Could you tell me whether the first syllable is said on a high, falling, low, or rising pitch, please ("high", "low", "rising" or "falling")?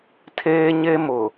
high